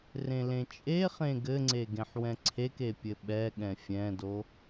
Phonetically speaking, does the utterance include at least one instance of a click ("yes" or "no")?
yes